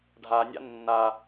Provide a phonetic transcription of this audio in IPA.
ɖʱa nʲa̰nːa

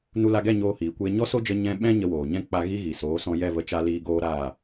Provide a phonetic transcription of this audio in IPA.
nu˧la˧ɡɛ˦˨ ɲoː˧hiː˨kʷeː˧ ɲɔ˦so˦d͡ʒə˧ ɲɛ̃˧ ɓɛ̃˦ ɲə˧woː˨ɲɛ̃˦ k͡pa˧ ɣi˦ ɣi˨soː˨˦sɔ̃˧ jɛ˦˨və˧t͡ʃa˧ liː˧ɡoː˦ɾaː˦˨

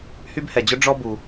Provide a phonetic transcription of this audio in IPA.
hy˥bhɛ˧d͡ʑʊ˥ ɖ͡ʐɔ˥ bu˧

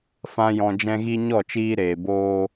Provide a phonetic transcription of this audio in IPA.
fã˦jɔ̃˧ d͡ʒɛ̃˦ɣi˦ ɲɔ˦˨t͡ʃiː˧ ɾeː˨boː˧

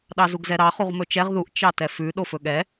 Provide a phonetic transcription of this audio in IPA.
ɗɑzuɡzɛɾɑ χuʁmɵt͡ʃɛʁ ðuʔ t͡ʃɑtɛfʉ ɗofɵɠɛ

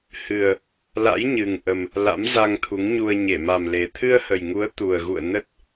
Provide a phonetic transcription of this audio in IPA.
hɨ˨˩ə̯ | la̰˧˥jɲɨ˨˩ŋʔə˨˩m | la̰˧˥mza˧ŋt̪ʰu˨˦ŋɲu˧ə̯ ɲe˧˩ma˨˩mle˨˩ t̪ʰɨ˧ə̯hə˨˩jŋu˨˦ə̯ t̪u˨˩ə̯ɣṵ˧˨ə̯ nə˦˥t̚

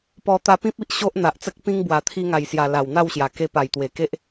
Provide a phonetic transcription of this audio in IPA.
pɔ˧ t̪a˧pĩ˦p̚i˦ʔ ɕo˦ʔn̪a˨ʔt͡sə˦k̚pĩ˦ŋ bwa˨˩t̪ʰi˧ ŋa˨˩jsja˨˩ la˨˩wn̪a˥˧wɕja˨˩ ke˧pa˨˩jt̪we˨˩ke˦ʔ

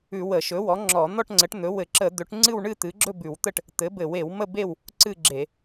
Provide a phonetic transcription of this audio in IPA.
ʉ˧˩˧ wə˧˩˧ʃɵ˩˥wɔ˩˥ŋ͡ǁɔ˧˩˧ n̪ɔ˥˨ʈŋ͡ǀə˩˥ʈn̪ɵ˩˥ wɘ˧˩˧ǁə˧˩˧ d̪ɵ˩˥ʈ ŋ͡ǀɨ˥˨wɳɨ˥˨t̪ɨ˩˥ ɡ͡ǁɵ˥˨bʉ˧˩˧wt̪ə˥˨ʈ | t̪ɘ˩˥bɘ˧˩˧we˧˩˧w mə˥˨be˥˨w | ǀɨ˥˨ɡ͡ǁe˧˩˧

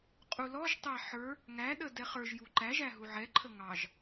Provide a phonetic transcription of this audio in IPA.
qʼulɔʒtˤæ ħə˞ | ŋæɗə dɛχə˞ʒju ǃæʒæ ɦuʕɛǃʰə ŋɑʒ

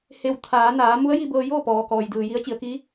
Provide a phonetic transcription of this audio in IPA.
he˩w t̪ʰaː˩˧naː˩˧ mu˧˥ə̯ji˧bɤː˧joː˥˨ pɔː˩ kɔː˩jdɯː˩ji˧˥ə̯ t͡ɕi˩˧ə̯ki˧˥

